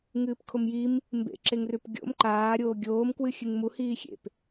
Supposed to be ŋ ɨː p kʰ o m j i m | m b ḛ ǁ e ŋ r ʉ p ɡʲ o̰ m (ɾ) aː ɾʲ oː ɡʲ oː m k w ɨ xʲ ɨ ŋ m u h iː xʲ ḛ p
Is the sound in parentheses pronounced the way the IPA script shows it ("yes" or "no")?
no